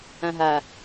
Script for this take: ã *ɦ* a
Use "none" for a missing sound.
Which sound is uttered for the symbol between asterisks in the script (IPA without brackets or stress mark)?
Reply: ɦ